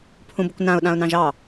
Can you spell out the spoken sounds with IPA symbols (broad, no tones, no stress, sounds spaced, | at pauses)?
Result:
pʰ ũ b ʊ kʷ n ã ʊ̯ ɗ ã ʊ̯ n ɑ̃ ʒ ɑ